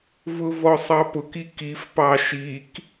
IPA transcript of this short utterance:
vʊvɔsˤɑpʊk ikif pɑʃik

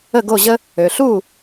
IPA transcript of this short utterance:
ə˥˩ɡo˥˩ʑə˥ | ø˩ɬu˥˩

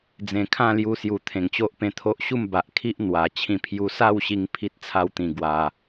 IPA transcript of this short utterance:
d͡zẽ˨˩kʰã˥˧lju˧sju˨˩ t̪ʰẽ˨˩ŋt͡ɕo˦ʔpẽ˧t̪ʰo˦ʔ ɕu˥˧mba˨ʔkʰi˦ʔ n̪wa˨˩ t͡ɕʰĩ˧pʰju˧ sa˥˧wɕi˧ŋ pʰi˦t̚t͡sʰa˦wt̪ĩ˧ ɡwa˧

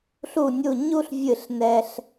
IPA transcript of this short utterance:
ɬu˦˨nʲu˦˨ɲu˥ɬvʲɨ˦˨ɬ nɛ˥ɬ

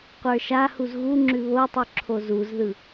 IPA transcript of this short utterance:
qʷə˞ʃahuz ɣu ŋ͡ǁʉβotˤʉ ǁʰozuzðɯ

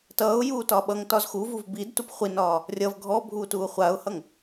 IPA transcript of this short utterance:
tʌːʊ̯ juːtɒɓʌŋtɒz xuvuv bidtup χʷinɒː | rʲʌv ɡʱɔbʱuː tuːχʷaʊ̯hʌŋ

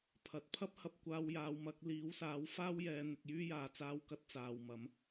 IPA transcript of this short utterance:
pʰɐ˨˥t̚ pʰɐ˥p̚hɐ˧p̚ kʷaː˧wjaː˨˧wmɐ˨˥k̚ liː˨˥wsaː˨˥w faː˥wjɛː˨˧ n̪ɪ˨k̚jyː˥jaː˨ t͡saː˧wkɐ˧t̚ t͡saː˨wmɐ˨˥m

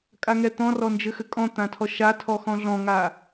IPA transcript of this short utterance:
kʼaŋɛt̪ɔ̃rɔ nd͡ʒɘxɘkʼɔ̃ t̪ãtʰɔʃa tʰɔxɔ̃ɮɔ̃ŋa

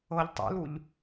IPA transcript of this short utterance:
ɤʎ tˤṵluʎ

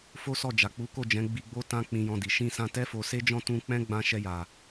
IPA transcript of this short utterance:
fo˦sɔ˦˨ d͡ʒa˨k͡pu˨˦ko˦˨d͡ʒɛ̃˨˦ ɡ͡bi˧ɡ͡bo˦ tã˦k͡pĩ˧jɔ̃˧di˨ ʃĩ˧sã˧tɛ˦ fo˧se˦d͡ʒɔ̃˦ tũ˦ k͡pɛ̃˦ɡ͡bã˧ʃɛ˧ja˨

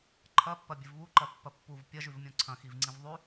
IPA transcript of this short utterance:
ǃʰɐ pːɐbʲɨvβu ǃɐpːɐpːuv pʲɐ ʒʉvmʲõǀʰɐ̃ xivŋ͡ǀĩvðˤʉ

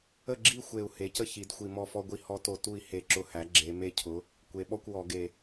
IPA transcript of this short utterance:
ə˦˨ɡ͡ǁi˦˨xʷe˨˩u̯ he˩˥cə˦ çi˩˧dxʷi˨˩ mɔ˦˨fɔ˦ɡʷi˦ hɔ˦to˧˩˧ tu˦˨i̯he˧˩˧ ǁʊ˦˨hæ˩˥ ɡ͡ǁe˩˧ me˦cʰʊ˩˥ | kʷe˩˥ ɓɔ˦kʷ wɔ˧˩˧ɡe˨˩

